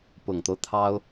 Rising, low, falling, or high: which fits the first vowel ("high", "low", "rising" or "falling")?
low